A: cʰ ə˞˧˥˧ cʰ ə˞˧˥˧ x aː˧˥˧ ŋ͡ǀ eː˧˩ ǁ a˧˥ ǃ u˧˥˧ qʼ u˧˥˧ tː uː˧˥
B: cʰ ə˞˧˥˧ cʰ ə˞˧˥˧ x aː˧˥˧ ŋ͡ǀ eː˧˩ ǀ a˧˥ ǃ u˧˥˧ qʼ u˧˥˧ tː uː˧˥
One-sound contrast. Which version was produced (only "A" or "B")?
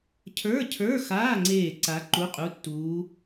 B